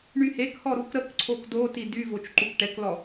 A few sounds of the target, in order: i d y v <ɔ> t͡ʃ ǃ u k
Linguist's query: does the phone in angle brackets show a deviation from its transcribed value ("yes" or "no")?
yes